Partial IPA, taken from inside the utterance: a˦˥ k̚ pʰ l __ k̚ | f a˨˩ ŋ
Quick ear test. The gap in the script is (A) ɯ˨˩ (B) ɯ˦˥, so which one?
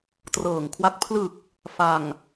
A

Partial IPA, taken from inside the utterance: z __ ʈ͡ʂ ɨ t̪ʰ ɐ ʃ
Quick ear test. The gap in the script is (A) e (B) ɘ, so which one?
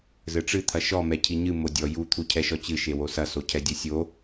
B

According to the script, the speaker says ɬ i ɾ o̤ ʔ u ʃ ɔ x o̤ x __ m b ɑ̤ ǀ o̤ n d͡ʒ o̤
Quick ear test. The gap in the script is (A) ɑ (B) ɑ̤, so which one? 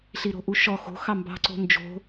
A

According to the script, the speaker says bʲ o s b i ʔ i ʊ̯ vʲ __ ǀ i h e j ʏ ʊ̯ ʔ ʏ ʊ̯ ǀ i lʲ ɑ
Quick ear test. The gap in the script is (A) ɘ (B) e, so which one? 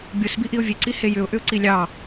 B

